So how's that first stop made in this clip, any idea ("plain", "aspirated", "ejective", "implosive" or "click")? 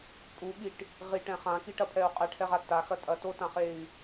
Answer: ejective